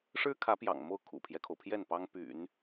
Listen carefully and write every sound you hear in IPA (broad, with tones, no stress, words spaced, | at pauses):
ʂɻ̩˥kʰä˧˥ pjɑ̰˨˩ŋmo˥˩ʊ̯ kʰṵ˨˩pʰjɛ˦kʰo˩ʊ̯pʰjɛ˥˩n pɑ˥ŋ py̰˨˩˦n